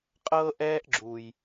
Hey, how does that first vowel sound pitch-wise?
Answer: high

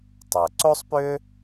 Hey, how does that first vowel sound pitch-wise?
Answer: low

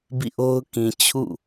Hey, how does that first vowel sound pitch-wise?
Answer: falling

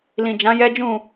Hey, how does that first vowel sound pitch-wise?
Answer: low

